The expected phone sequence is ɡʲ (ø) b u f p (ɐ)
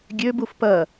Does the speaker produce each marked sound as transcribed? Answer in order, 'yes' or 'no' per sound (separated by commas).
yes, yes